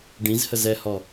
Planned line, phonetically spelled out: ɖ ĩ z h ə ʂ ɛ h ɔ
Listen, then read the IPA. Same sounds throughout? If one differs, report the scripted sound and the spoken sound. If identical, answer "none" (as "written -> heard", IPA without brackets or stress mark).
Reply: ʂ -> z